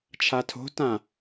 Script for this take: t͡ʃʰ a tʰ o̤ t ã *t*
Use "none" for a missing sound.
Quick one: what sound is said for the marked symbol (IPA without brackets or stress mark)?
none